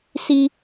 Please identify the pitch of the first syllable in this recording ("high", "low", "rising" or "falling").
high